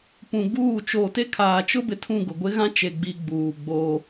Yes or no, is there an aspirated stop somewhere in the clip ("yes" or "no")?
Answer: yes